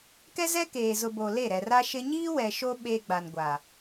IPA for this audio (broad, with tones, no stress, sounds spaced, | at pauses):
k ɛ˦ z ɛ˦ k eː˨ z ʊ˨ b o˨ l e˦˨ ɾ ɛ˨ r a˦ ʃ ɪ˦ ɲ iː˦ w ɛ˨ ʃ o˦ ɓ e˦ ɡ͡b a˨ n ɡʷ a˨